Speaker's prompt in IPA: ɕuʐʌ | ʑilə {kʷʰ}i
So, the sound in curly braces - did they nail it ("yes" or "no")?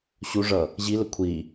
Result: yes